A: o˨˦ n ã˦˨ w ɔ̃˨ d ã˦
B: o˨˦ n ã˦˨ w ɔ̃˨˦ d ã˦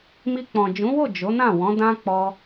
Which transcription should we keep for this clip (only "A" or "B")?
B